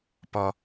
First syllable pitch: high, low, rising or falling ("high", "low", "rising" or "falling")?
high